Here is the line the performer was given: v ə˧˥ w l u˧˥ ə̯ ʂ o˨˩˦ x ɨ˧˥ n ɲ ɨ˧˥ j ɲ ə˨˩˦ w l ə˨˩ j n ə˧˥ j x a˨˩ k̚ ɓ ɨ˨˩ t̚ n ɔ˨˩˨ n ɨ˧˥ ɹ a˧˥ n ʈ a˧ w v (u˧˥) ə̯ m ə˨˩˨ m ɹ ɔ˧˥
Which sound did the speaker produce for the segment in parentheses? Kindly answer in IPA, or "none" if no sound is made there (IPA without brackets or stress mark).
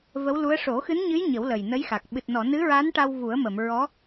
u˨˩˦